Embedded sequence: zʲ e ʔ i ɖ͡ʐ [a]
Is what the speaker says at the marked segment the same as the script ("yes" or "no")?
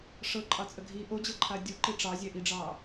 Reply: no